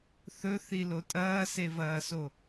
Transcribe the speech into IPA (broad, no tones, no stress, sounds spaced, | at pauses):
θ ɵ θ i l o tʼ ɐː s e v ɐː s o